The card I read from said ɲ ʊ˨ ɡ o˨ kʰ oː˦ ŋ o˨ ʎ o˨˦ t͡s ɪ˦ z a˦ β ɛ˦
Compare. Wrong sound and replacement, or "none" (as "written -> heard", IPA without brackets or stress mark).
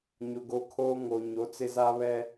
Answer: ʎ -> ɲ